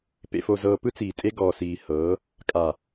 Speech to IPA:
p ḛ˨ f o˨ z ɤː˨ p ɯ˦ t͡s iː˨ tʼ e˦ ɡ ɔː˨ s iː˨ h ɤː˨˦ | kʼ a˨

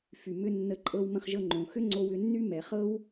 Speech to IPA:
f y˩ m ʏ˧ nː ə˧ ǃʼ ɤ˧ w m ə̃˧ χ ʒ ɤ˧ ŋ͡ǃ õ˩ x ʏ˥ ŋ͡ǀ o˧ w ʏ˧ nː y˥ m ɛ˩ χ ɤ˥ w

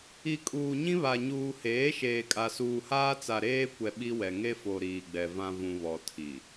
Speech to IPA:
i˨ kʼ uː˨ ɲ ĩ˦ β a˨ ɲ uː˨ h eː˨˦ ʃ eː˨ kʼ a˨ s uː˨ h aː˦ t͡s a˨ ɾ eː˦ kʷ ɛ˨ ɓ i˦ w ɛ˨ ŋ e˦ f o˨ ɾ iː˨ ɡ͡b ɛ˨ v ã˨ v ũ˨ β ɔ˨ tʰ i˨

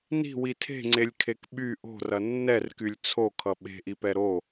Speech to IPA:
n i̤ w i tʰ e̤ ŋ͡ǀ e lʲ kʰ e k ɓ y ʔ o̤ r ɐ nː ɛ r k y lʲ t͡sʰ o kʰ ʌ ɓ e̤ ʔ i p ɛ ɾ o

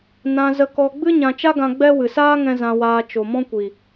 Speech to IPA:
n ã˧ z ə˧ k ɔ˧ ɡ͡b ɨ˦ ɲ ã˧ t͡ʃ a˦ ɡ ã˧ ɡ͡b ɛ˦ w ɨ˨ s aː˦ ŋ ɛ̃˧ z ã˧ w aː˧ t͡ʃ o˨ m ɔ̃˦ kʷ i˨

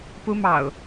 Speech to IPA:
p u˦ m ɑ̰˨˩ ʊ̯

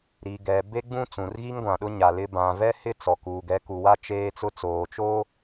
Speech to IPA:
ɾ i˨ ɡ ɛ˨ b e˦ ɡ͡b ũ˦ t͡s ũ˨ r ɣ i˦ ŋ ɡʷ ã˨ ɗ ʊ˦ ɲ a˨ l ɪ˦ b ã˨ v ɛ˦ h ɪ˦ t͡s ɔ˨ k uː˨ ɡ ɛ˨˦ k u˨ w a˦ t͡ʃ eː˦ t͡s ʊ˦ t͡s oː˨ t͡ʃ oː˦

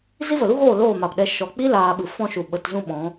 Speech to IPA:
z i˦ v ə˨ l u˦ ɣ oː˦˨ l oː˦˨ m a˨ p ɗ ɛ˧ ʃ ɔ˨ k͡p i˦ l aː˧ ɓ ɨ˨ f ɔ̃˦ ʃ u˨ ɓ ə˧ t z ũ˦ ɓ ɔ̃˨˦

